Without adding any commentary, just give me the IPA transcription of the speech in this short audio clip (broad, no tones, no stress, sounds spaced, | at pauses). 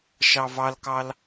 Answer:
ʃ ɑ v ɑ l k ɑ l